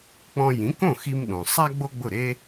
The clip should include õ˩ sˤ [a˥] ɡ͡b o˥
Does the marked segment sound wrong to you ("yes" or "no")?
no